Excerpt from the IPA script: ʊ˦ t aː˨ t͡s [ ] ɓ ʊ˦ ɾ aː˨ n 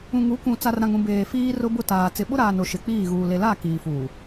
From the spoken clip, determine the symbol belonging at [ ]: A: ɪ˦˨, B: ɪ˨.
B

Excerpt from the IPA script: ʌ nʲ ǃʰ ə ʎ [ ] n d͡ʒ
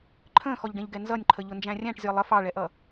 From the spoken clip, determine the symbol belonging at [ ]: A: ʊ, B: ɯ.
A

